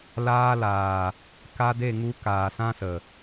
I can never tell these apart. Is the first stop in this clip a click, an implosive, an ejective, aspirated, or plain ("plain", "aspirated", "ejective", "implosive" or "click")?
plain